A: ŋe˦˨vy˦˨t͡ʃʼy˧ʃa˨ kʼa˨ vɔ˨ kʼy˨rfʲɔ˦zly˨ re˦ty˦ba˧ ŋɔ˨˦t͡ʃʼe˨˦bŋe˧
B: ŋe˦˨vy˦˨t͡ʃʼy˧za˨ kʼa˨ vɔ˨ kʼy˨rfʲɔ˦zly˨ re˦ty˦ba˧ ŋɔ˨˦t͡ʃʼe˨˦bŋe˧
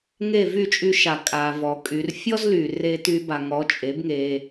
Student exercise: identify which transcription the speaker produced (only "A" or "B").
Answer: A